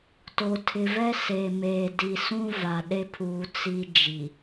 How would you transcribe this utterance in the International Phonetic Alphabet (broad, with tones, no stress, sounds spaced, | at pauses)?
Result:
t o˨ tʰ ɪ˨ v ɛ˦ s e˨ m eː˨ d i˨ s ũ˦ v a˨ ɗ e˦ pʰ uː˨ t͡s i˦ d͡ʒ i˨